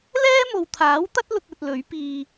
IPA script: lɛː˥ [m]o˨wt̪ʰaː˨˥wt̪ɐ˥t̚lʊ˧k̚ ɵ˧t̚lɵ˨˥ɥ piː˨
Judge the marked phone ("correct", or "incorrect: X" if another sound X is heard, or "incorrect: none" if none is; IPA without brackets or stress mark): correct